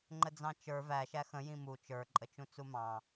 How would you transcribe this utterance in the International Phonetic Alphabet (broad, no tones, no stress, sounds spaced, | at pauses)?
ŋ͡ǃ ə d͡z ɑ̃ t͡ʃ ə˞ v æ ʃ æ x ə̃ j ĩ m u t͡ʃ ə˞ ǃʼ ə t͡ʃ ũ t͡s u m ɑ̃